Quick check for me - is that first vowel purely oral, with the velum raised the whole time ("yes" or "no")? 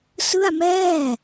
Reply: yes